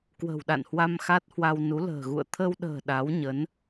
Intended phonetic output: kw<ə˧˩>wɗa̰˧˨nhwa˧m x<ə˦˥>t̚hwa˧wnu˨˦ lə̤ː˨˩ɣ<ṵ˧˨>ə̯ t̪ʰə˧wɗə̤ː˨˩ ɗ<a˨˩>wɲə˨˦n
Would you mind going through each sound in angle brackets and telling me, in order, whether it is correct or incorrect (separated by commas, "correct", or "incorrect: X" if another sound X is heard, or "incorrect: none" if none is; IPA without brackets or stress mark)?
incorrect: ə̤˨˩, incorrect: a˦˥, correct, incorrect: a˨˦